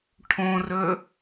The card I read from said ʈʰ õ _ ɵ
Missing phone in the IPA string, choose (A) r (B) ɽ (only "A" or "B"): A